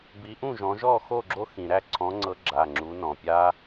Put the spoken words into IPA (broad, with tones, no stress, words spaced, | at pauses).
bi˨˦ʔũ˥˨ʒɔ̃˨˦ ʒɔ˥˨xo˥˨ɡ͡ǁo˦xĩ˩ ɾæ˥˨ǀʰɔ̃˨˦ŋ͡ǀɤ˨˦ ɡ͡ǁa˩˧˩ŋ͡ǁu˨˦ nɔ̃˩pʲa˦